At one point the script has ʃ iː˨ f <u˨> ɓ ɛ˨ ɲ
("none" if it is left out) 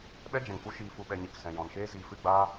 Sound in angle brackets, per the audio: u˨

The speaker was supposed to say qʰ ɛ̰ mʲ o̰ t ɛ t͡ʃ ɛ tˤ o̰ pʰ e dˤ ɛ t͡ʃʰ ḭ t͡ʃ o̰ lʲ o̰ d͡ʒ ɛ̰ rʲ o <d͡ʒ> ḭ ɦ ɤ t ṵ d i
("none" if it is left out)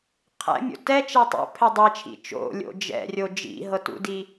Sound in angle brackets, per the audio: d͡ʒ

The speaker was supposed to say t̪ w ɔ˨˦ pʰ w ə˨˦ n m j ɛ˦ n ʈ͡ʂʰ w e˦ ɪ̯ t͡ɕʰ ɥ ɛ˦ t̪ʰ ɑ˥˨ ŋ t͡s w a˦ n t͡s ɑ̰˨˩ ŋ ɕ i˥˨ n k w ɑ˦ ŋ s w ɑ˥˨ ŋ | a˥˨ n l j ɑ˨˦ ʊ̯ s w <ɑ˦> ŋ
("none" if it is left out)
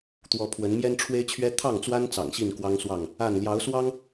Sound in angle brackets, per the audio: ɑ˦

